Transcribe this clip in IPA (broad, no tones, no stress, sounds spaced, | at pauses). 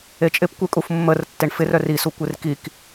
e t͡ʃʼ ɪ p kʷ e kʼ u f mː ə r tː e ɳ f ɪ r œ r i s u kʷ e r k i k